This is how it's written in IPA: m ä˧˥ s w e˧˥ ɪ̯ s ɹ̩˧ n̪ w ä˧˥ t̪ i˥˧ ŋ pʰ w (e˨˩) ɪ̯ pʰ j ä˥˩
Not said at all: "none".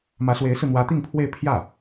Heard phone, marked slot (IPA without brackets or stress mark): e˥˧